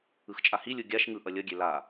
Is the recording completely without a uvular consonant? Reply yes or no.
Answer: yes